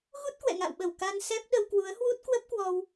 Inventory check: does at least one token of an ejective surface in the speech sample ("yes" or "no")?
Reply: no